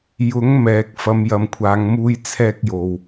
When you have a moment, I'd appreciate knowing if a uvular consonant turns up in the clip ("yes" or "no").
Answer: no